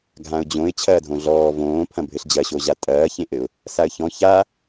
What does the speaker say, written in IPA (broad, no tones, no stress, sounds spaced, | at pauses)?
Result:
ɡʱ ã ʊ̯ d͡ʑ õ ɪ̯ t͡ɕʰ ɐː dʱ õ ɮ ɔː v õː pʰ ɐ̃ bʱ ɘ ɬ d͡ʑ ɐ ɕ o ʑ a tʼ ɐː ç ẽ ʔ ɘ ʊ̯ | s a ə̯ ç ɔ̃ ç a